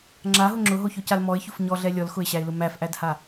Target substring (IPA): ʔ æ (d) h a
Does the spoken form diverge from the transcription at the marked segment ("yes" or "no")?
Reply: no